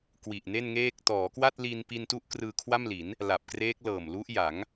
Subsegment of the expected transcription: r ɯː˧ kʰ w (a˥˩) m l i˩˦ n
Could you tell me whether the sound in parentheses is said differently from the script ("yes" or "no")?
no